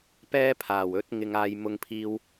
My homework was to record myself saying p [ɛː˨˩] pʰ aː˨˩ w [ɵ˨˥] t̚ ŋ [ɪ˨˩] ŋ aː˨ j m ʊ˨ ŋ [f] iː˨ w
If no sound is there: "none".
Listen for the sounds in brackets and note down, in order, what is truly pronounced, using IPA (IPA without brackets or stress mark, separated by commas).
ɛː˥, ɵ˨˥, ɪ˨, pʰ